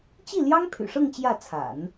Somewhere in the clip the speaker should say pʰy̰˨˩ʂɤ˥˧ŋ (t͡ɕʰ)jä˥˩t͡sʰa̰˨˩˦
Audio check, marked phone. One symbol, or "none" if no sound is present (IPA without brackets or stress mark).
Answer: t͡ɕ